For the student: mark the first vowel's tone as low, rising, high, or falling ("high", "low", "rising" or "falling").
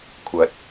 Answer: rising